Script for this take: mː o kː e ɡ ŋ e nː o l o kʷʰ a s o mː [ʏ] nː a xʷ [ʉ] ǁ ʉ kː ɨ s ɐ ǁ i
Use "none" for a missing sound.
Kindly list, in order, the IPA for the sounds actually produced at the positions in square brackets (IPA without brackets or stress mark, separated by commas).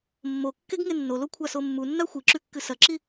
u, ɨ